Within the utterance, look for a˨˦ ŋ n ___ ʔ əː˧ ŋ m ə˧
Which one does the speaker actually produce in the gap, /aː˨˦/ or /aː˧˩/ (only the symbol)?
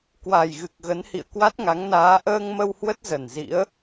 aː˨˦